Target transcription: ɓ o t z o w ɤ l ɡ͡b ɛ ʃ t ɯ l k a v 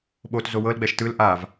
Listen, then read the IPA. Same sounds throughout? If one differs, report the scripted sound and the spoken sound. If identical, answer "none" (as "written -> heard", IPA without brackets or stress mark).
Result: k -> ʔ